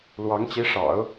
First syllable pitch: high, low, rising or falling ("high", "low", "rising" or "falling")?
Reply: rising